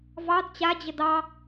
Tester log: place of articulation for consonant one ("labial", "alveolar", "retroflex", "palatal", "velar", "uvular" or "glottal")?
labial